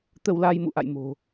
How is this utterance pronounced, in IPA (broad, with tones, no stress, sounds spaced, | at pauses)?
t̪ ə˧ w l a˧ j m ṵ˧˨ ʔ a̰˧˨ j m o̤˨˩